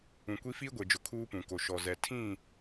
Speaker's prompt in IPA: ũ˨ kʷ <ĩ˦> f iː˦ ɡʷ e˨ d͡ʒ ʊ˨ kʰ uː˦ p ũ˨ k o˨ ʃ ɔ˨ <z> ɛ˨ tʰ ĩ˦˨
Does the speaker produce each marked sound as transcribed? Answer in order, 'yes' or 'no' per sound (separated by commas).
no, yes